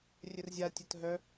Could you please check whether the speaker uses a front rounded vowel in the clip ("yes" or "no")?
yes